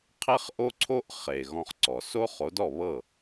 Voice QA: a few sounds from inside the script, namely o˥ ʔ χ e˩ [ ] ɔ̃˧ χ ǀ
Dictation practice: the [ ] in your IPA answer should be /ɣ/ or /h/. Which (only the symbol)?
ɣ